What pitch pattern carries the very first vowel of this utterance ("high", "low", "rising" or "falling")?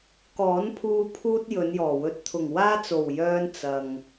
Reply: rising